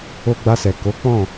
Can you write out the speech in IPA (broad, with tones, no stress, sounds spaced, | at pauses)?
o˧ ɡ͡b a˧ s ɛ˨ k o˨˦ k͡p ɔ̃˦˨